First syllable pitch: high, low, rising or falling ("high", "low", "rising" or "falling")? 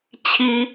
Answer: high